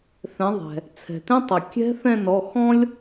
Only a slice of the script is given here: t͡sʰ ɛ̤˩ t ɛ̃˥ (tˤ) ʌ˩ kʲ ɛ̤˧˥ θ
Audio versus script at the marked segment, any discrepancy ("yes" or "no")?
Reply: no